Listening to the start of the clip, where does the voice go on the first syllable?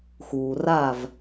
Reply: low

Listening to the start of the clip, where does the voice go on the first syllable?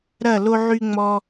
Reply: falling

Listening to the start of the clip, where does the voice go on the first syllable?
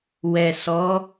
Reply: low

